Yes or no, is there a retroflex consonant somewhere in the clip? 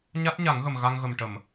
yes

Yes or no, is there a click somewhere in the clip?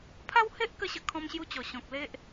no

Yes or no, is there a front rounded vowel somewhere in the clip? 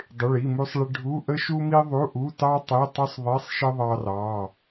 no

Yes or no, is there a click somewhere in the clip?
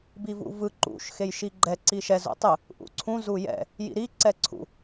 yes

